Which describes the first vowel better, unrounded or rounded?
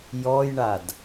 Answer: rounded